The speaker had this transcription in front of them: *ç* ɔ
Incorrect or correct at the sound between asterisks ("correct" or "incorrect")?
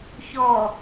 correct